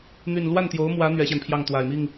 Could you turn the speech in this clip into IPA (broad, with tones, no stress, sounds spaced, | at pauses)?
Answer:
n̪ y˥˧ n l w a˥˩ n t̪ j o˧˥ ʊ̯ m w ä˧˥ n̪ ɥ ɛ˧˥ ɕ j ɛ˧ n pʰ j ɑ˥˩ ŋ t̪ w a˨˩ ɪ̯ m i˥˩ ŋ